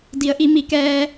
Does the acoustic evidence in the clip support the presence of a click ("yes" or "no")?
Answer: no